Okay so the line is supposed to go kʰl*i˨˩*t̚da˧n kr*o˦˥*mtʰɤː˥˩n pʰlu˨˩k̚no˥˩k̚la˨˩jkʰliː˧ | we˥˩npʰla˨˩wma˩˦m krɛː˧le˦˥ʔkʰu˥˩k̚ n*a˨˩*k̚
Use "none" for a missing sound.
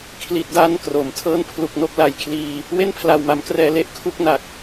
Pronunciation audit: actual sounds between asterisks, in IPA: i˨˩, o˩˦, a˨˩

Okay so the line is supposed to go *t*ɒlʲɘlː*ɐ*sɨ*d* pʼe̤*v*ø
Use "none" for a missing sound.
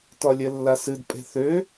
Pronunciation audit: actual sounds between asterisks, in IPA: t, a, d, θ

